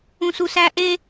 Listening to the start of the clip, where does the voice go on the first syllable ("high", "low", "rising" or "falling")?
high